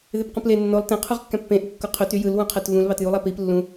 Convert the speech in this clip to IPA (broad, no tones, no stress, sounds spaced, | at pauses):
ð e p q ũ p l e nː o lˠ t ẽ qʰ u ʁ kː æ̃ pː ẽ ʔ ɯ kː o qʰ ø t y j ɯ l w ũ qʰ æ t v ũ l β ɑ t j u lˠ æ p i p lː ũ